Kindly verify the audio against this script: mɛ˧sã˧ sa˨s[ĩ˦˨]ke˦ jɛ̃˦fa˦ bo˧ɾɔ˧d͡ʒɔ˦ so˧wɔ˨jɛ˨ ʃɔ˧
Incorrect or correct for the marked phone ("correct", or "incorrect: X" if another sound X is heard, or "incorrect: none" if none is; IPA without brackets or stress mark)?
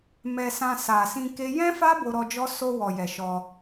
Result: incorrect: ĩ˧